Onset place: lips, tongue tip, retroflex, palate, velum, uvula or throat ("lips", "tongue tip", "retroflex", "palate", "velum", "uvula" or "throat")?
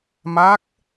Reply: lips